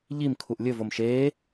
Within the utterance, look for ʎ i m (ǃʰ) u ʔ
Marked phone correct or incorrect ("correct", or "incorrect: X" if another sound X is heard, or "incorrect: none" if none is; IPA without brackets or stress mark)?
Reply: incorrect: kʰ